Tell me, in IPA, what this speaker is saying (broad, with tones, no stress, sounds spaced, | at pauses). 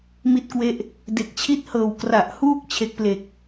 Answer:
m i˦˥ t̚ k w e˦˥ ʔ | d e˨˩ k̚ t͡ɕʰ i˥˩ t̚ h ɤː˨˩ w k r a˨˩ ʔ h uː˥˩ k̚ t͡ɕʰ e˦˥ k̚ p l e˨˩ k̚